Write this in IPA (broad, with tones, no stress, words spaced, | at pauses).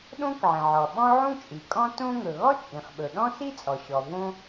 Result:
ɗõ˥kʕĩ˩ʕɔ˩ ɓɔ̃˥ʕũ˥t͡ʃʼi˩ kʼɔ̃˥tõ˥ ŋɵ˩ɣɔ˥t͡ʃʼĩ˩χɓɵ˩ ɗɔ̃˥si˥ t͡sʼɔ˩ɕɔ˩ võ˥